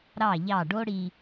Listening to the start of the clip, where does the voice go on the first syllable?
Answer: falling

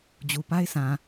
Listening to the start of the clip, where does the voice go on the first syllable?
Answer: low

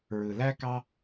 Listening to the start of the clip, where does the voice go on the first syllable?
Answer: low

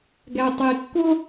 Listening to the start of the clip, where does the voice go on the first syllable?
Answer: low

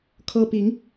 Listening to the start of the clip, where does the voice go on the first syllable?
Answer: high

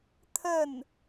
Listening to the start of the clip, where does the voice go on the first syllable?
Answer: falling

